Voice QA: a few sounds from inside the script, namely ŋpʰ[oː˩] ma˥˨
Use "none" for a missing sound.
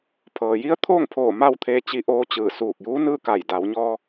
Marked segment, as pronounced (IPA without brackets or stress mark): oː˧˩